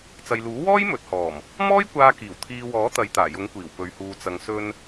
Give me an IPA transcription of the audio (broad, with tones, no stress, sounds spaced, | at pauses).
t͡s ɐ˨ j l uː˨˥ w ɔː˥ j m ɵ˨ t̚ h ɔː˨˩ m | m ɔː˥ j kʷ aː˧ k iː˨˩ w t̪ʰ iː˨ w ɔː˨˥ t̪ ɐ˨˧ j t̪ aː˨˩ j ʊ˨˥ ŋ kʷ iː˨˩ w p ɵ˨˧ ɥ h uː˧ t͡s ɐ˧ ŋ s ɵ˧ n